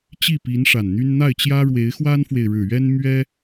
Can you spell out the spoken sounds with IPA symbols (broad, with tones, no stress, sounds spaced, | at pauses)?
t͡ɕ i˥˩ p i˧˥ n ʂ a˨˩ n n̪ y˥ n n̪ a˥˩ ɪ̯ t͡ɕ j ä˥ ɻ w e˧˥ ɪ̯ x w a˥ n f w e˨ ɪ̯ ɻ ɻ̩˨˩ ɥ ɛ˥ n m ɥ ɛ˥